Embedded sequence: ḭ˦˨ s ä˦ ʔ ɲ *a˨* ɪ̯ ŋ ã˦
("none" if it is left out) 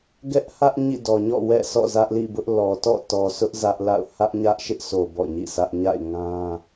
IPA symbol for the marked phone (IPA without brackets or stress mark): a̰˦˨